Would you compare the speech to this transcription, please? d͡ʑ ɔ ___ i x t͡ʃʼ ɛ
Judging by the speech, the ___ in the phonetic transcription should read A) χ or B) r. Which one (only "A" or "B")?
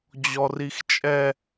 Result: B